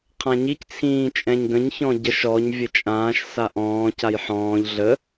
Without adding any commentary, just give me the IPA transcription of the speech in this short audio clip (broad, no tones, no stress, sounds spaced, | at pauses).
qʰ ã ɲ i c t͡sʰ ĩː t͡ʃʼ ɛ̃ ɲ ɡ ə̃ ɲ ç ɔ̃ ɟ ə ʃ ɔ ɲ vʲ ə t͡ʃʼ ãː ʃ s a ʔ ɔ̃ː c a j ħ ɔ̃ː ʎ ɮ ə